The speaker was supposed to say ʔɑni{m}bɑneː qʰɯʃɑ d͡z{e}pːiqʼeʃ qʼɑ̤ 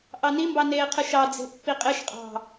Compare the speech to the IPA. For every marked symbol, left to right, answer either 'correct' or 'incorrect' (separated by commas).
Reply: correct, incorrect